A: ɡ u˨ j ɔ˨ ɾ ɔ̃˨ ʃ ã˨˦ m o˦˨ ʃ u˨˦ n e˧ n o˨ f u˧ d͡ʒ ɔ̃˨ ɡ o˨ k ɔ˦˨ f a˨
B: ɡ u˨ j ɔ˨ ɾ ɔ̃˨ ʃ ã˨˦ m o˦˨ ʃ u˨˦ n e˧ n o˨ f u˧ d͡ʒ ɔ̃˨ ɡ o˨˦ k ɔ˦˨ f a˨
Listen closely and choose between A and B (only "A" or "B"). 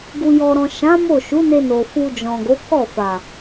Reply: B